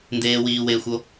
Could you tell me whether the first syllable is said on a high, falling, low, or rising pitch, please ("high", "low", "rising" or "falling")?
low